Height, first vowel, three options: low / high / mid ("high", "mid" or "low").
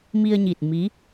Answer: high